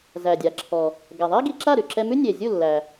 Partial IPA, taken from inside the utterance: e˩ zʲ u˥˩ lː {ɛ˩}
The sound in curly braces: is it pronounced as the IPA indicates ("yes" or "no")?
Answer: no